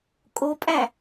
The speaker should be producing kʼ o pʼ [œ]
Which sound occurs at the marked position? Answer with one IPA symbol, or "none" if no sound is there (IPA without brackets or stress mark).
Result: æ